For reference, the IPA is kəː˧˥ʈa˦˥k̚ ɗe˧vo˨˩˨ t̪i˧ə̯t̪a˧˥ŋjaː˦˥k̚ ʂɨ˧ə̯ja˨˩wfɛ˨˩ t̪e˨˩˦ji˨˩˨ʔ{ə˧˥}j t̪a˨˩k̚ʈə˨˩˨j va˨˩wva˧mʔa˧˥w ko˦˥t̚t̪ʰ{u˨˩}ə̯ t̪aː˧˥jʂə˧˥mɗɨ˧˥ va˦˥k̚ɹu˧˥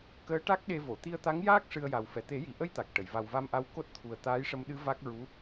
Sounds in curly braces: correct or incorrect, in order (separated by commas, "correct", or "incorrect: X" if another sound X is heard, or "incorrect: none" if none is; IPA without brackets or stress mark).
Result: incorrect: ə˧, correct